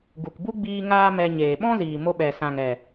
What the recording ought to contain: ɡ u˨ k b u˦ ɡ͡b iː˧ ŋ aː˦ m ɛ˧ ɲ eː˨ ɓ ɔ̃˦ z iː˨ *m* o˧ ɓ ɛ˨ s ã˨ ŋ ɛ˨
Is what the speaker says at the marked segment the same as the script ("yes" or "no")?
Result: yes